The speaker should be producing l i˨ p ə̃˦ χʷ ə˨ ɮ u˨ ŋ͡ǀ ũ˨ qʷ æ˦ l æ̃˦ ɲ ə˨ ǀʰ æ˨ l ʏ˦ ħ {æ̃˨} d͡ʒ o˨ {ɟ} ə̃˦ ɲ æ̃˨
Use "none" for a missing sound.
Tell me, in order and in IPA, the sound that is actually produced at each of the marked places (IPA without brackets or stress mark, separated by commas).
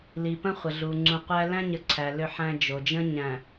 æ̃˦, d͡ʒ